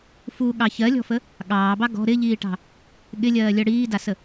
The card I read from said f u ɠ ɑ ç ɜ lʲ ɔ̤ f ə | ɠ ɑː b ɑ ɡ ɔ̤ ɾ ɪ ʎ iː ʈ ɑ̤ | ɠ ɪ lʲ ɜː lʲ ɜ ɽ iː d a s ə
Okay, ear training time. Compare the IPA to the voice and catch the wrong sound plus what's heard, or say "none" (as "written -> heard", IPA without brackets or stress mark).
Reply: none